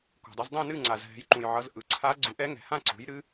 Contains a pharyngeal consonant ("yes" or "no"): yes